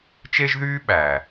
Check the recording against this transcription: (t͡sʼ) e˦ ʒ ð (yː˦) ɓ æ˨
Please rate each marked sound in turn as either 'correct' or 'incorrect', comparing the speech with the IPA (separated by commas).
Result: incorrect, correct